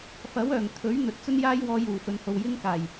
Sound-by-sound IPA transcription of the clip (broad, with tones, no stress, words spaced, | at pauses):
fɐ˨˥wœː˨˩ŋt̪ʰɵ˨˥ɥ n̪ɵ˨t̚t͡sɵ˥n jaː˥jwɔː˧juː˨˩ fɵ˨nho˨w jɪ˥ŋkaː˨˩j